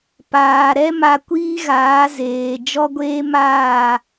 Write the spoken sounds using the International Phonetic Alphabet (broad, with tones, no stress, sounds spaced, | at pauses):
p aː˨ ɾ ɛ˦ m a˧ kʷ iː˦ ɣ aː˨˦ z eː˨ d͡ʒ ɔ˦ ɡʷ eː˦ m aː˦˨